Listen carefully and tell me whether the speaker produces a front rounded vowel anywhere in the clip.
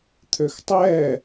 yes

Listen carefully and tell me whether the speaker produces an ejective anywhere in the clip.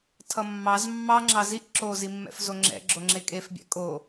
yes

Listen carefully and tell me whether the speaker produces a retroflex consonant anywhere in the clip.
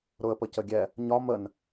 no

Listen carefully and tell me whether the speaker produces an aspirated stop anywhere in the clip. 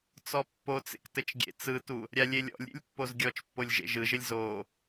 no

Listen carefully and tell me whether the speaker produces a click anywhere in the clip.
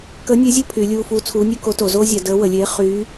no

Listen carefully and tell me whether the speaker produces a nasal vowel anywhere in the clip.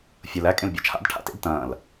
yes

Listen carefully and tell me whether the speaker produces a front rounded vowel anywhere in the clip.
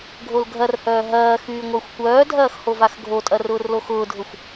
yes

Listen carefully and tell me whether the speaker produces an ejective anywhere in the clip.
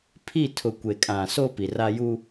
yes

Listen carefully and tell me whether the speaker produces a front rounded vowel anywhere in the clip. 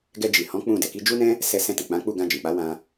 no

